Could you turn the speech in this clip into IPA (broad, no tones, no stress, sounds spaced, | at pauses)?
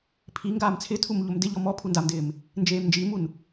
pʰ i ŋ ɡ aː m t͡sʰ ɪ tʰ u m ʎ o m d ɪ ʎ ɔ m ɔ pʰ u n d a m d ɪː m | n d͡ʒ eː m n d͡ʒ iː m u n